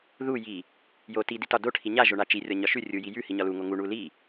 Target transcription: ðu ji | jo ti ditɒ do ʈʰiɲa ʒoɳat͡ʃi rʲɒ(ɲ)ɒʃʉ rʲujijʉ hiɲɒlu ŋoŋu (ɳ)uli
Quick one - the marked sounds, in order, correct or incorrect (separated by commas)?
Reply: correct, correct